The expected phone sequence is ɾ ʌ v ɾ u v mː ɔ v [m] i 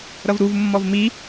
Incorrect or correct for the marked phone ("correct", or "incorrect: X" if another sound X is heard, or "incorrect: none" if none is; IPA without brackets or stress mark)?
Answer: correct